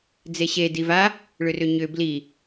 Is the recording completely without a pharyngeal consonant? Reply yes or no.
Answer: yes